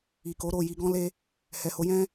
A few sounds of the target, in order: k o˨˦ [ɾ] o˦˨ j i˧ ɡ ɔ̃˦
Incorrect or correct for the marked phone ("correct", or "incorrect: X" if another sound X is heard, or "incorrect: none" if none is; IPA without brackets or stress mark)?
correct